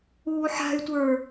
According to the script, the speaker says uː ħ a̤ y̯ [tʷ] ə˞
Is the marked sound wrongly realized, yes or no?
no